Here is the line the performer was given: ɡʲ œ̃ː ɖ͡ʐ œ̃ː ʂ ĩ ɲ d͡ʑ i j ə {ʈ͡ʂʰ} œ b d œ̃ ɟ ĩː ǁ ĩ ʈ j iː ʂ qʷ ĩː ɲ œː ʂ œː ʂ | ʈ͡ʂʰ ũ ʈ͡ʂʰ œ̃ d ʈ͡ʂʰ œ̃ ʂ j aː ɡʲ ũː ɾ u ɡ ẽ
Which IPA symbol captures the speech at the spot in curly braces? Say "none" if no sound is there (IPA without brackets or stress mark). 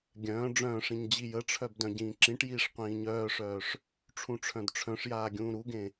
ʈ͡ʂʰ